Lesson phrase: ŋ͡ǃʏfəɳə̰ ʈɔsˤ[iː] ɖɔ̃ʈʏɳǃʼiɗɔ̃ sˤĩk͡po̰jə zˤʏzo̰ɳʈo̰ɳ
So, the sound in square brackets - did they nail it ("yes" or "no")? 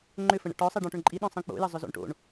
no